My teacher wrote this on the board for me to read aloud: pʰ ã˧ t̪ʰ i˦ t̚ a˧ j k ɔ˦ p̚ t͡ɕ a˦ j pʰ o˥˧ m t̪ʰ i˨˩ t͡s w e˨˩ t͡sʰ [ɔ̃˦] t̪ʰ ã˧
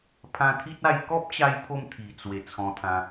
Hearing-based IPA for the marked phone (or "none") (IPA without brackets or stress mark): ɔ̃˧